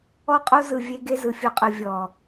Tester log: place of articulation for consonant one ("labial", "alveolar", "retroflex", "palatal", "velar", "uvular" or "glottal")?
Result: uvular